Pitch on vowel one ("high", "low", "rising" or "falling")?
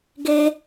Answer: high